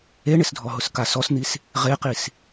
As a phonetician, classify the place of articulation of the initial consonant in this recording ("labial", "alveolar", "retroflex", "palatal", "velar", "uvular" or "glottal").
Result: retroflex